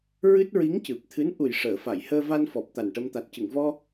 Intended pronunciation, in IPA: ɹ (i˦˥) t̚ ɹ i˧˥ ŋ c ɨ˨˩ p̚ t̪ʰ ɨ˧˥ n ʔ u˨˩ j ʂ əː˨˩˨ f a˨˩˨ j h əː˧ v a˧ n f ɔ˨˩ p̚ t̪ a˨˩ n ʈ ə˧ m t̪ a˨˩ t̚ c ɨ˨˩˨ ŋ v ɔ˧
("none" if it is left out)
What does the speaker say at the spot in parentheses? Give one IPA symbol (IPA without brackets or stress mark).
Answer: ɨ˦˥